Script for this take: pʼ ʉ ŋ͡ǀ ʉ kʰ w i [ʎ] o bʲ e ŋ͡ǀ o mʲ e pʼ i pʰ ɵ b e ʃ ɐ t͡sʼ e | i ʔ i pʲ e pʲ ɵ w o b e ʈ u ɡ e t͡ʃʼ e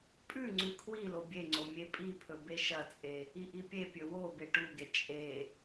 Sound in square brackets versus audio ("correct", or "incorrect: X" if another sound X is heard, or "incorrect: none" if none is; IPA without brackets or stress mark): incorrect: l